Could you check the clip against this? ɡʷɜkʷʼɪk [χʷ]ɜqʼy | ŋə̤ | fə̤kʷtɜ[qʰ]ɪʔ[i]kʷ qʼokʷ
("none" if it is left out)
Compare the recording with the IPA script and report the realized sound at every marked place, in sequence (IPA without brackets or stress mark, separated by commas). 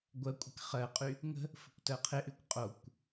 χ, qʰ, y